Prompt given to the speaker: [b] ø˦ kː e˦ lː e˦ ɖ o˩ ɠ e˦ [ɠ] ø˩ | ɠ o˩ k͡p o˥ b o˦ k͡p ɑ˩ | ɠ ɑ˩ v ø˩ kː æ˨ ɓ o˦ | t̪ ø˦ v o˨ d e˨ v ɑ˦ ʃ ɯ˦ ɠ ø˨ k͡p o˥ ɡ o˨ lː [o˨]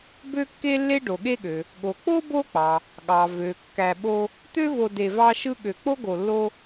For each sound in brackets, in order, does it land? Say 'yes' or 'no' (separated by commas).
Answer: yes, yes, no